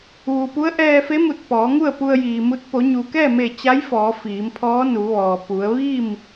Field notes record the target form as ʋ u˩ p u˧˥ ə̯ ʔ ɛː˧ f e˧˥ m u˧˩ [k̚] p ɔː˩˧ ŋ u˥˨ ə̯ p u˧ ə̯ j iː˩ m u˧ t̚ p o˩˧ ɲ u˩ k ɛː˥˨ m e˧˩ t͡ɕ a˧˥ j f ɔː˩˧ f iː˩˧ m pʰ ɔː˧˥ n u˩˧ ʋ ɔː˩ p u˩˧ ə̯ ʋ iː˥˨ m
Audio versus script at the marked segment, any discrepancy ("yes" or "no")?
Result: yes